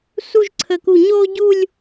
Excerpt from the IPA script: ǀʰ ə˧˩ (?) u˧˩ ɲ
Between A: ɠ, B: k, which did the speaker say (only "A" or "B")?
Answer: B